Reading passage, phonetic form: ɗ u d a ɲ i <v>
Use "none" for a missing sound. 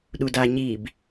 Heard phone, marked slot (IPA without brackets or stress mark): b